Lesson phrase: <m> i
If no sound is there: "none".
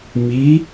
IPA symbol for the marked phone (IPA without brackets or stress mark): m